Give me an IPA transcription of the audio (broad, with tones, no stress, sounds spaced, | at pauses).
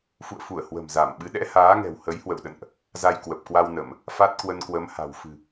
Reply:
f ṵ˧˨ ə̯ f u˧˩ ə̯ h w ə̤˨˩ m z a˧˩ m ɓ ɨ˨˦ ɗ ɛ̰˧˥ h aː˨˦ ŋ ɛ̤˨˩ w h ə˨˦ j h w ə̰˧˨ w ɗ ə̰˧˨ n ʔ | z a˧ j k w ə˨˩ p̚ k w a˧ w n ə˧˩˨ m | f a˦˥ t̚ k w ə˧ n k w ə˨˦ m h a̤˨˩ w f ɨ̤˨˩